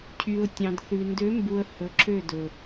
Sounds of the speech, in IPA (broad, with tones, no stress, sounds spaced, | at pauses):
cʰ y˨ ʊ̯ tʲ ɑ̃˨ d θ ʉ˨ n d ø˨˦ m b u˨ ə̯ h ɵ˨ ǁʰ ø˦˨ d ɵ˨